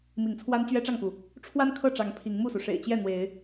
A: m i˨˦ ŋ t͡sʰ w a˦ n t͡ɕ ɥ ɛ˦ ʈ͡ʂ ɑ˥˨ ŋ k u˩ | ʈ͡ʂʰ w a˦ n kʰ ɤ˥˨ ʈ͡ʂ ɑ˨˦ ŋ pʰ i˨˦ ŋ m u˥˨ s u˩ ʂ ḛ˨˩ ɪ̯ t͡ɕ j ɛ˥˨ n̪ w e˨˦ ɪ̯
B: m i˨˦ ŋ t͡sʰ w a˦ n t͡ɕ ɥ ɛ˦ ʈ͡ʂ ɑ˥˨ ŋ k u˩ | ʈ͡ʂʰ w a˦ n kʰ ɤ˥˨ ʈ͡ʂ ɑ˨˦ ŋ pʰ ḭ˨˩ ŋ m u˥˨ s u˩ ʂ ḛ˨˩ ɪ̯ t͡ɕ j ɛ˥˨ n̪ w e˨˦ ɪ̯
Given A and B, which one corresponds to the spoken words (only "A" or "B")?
A